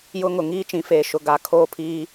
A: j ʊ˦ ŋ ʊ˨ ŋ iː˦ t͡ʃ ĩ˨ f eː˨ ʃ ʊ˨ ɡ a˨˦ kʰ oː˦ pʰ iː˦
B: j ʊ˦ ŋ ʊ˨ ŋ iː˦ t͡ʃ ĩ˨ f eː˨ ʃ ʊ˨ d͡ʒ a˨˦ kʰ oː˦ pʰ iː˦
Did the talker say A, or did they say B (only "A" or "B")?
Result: A